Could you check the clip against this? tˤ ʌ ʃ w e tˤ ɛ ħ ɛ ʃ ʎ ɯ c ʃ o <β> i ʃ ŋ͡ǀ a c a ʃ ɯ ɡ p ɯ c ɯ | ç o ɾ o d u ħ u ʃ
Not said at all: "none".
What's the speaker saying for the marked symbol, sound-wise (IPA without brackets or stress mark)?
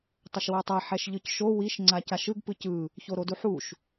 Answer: w